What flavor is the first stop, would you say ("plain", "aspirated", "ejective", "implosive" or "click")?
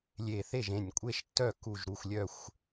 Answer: ejective